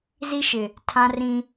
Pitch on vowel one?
high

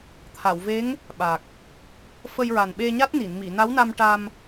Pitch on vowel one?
low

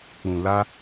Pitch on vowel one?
low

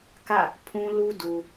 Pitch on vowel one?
falling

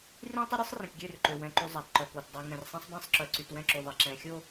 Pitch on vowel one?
high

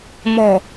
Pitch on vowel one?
low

